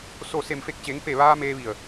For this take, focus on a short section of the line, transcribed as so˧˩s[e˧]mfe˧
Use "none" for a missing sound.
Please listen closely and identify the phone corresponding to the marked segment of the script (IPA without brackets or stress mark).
e˧˩